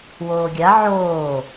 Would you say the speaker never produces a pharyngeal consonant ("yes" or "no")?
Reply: no